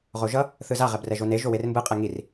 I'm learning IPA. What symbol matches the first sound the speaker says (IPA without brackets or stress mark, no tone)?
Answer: ʁ